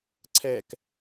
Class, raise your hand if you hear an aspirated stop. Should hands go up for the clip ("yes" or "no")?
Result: yes